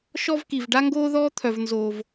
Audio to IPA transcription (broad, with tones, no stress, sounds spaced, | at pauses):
ʃ ɔ˥ v k i˧ v ɖ a˥ ŋ ɡ oː˥ ð ɔː˥ t̪ʰ œ˧ v n z oː˧ v